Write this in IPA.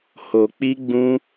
h o˨ k͡p i˧ ɡ͡b ũ˧

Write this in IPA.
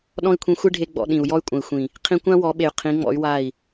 ɗ ɔ̃˦ i̯ kʷʰ ĩ˧ xʷ e˦ ɖʱ e˧ ɡ͡b ɔ̰˧ ɗ ĩ˨ u̯ j ɔ˧ y̯ kʷʼ ɐ̃˨ i̯ xʷ ĩ˨ | qʰ ĩ˧ kʷ ã˦ w ɔ˨˦ ɓ e˨ y̯ qʰ ĩ˨˦ ŋ͡m ɔ̰˨˦ y̯ w a˦˨ i̯

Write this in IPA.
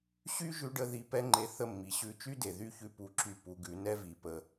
ɕ y˦ ʒ ʉ˧ ɖ ə˧ ð i˧ p ɛ˦ ŋ͡ǃ e˧ θ ə˦˨ mː i˨ ɕ ʉ˧ t͡ʃ y˦ d e˨ ð y˦˨ ç ʉ˧ p u˧ ǁ y˦˨ p u˧ ɡ ʉ˨˦ n ɛ˦ v i˨ p ə˧

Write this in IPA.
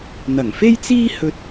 n̪ ɐ˨˩ ŋ f e˥ j t͡s iː˥ h ɵ˧ t̚

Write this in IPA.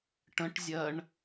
ʈ ə̃ ʈ zʲ ɜ ɳ

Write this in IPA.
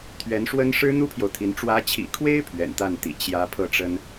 t̪ʰ ɥ ɛ˧˥ n ʂ w ə˥ n ʂ ɻ̩˥ n̪ u˥ pʰ j o˨ ʊ̯ t̪ʰ i˧˥ n ʈ͡ʂ w ä˧˥ t͡ɕʰ ḭ˨˩ kʰ w e˥ ɪ̯ pʰ ɥ ɛ̰˨˩ n t̪ a˥˩ n t̪ ḭ˨˩ t͡ɕ j ä˧˥ pʰ ɤ˥˩ ʈ͡ʂ ə˥ n

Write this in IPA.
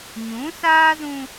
ɲ ũ˨˦ s aː˦ z ũ˦

